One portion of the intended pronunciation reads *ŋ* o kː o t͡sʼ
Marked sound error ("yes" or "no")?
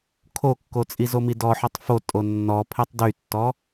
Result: yes